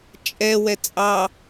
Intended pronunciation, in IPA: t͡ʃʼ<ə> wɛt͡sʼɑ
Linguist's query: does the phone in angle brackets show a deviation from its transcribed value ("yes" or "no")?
yes